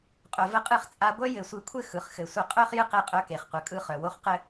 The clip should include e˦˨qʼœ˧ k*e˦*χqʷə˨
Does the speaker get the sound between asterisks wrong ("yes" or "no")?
yes